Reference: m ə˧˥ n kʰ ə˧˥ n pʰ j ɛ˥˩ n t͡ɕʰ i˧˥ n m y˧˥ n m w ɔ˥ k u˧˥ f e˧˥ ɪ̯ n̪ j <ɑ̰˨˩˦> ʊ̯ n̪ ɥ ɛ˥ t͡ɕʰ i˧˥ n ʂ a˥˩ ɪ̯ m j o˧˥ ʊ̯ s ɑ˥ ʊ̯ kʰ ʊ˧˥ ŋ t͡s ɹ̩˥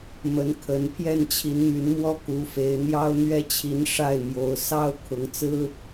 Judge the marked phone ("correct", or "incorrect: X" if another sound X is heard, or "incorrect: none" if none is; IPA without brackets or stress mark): incorrect: ɑ˥